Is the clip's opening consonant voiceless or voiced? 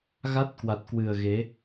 voiced